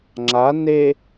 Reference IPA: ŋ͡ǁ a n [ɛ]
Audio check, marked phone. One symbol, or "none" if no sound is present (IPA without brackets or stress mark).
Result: e